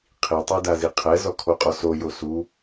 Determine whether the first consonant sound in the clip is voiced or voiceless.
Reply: voiceless